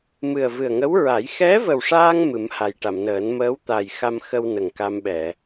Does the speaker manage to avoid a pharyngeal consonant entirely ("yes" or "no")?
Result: yes